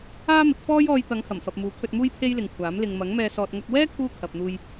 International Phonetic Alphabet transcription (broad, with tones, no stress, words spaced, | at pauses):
aː˥mɪ˨˥k̚fɔː˥j ɔː˧jt̪ɐ˨˧ŋhɐ˨˩m fɐ˨p̚muː˨˥kʰɵ˧t̚muː˥j pʰe˥jlɪ˨ŋkʷʰaː˨˥m lɪ˨ŋmɐ˨˥ŋmɛː˧ sɔː˨t̚ŋɐ˧k̚ wɛː˥ kʰuː˥kʰɐ˨p̚n̪uː˧j